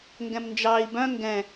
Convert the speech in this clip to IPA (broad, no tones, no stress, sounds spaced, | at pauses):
ŋ ɡ ɛ̃ m n d͡ʒ ɑ i̯ b œ̃ ŋ ɡ ɛ̃